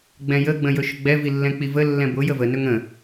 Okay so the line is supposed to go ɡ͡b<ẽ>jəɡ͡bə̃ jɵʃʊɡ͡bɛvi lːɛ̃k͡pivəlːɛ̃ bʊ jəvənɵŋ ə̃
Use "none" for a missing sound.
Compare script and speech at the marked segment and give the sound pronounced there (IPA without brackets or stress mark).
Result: ɛ̃